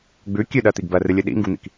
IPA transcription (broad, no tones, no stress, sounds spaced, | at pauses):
ɡ͡b ʉ kʲ ʉ ɗ ɜ t̪ i ɡ b ɜ r ɨ lʲ ɨ ɗ ḭ ŋ ɡ u n̪ ḭ k